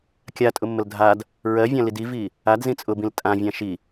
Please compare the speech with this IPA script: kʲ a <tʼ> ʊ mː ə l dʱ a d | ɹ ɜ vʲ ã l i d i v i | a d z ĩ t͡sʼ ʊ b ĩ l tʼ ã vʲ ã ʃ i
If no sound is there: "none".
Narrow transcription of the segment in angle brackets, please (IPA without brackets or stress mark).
tʼ